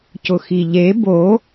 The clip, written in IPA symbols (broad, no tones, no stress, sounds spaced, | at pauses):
c ʊ x i ʎ e b o